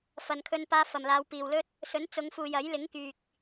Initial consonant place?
labial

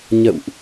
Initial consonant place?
palatal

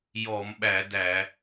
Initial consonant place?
palatal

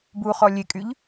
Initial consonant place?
labial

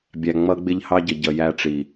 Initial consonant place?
labial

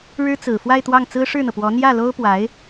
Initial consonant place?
retroflex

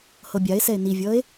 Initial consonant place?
glottal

